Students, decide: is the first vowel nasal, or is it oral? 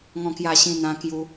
nasal